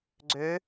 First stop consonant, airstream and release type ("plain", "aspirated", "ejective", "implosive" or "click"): click